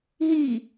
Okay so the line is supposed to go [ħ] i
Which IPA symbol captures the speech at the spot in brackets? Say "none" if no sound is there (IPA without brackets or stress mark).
ɦ